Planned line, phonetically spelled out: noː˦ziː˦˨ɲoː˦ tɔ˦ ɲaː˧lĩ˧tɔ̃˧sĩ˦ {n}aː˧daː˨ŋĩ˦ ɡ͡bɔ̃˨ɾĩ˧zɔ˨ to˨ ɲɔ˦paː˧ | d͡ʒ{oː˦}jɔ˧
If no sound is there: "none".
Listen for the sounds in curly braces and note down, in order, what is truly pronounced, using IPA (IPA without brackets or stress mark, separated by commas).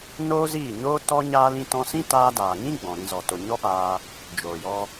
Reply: t, oː˨